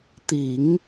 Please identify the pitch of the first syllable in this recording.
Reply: low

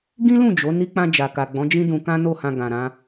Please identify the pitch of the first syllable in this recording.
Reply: high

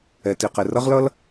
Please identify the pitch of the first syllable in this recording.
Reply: low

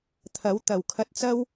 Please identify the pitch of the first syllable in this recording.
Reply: rising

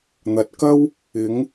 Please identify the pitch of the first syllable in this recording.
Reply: low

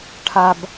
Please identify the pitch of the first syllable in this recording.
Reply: low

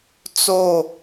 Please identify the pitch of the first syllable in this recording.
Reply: falling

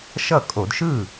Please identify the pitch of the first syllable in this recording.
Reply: falling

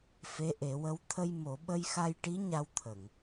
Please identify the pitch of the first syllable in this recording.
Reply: rising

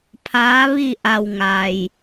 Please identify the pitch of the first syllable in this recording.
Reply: rising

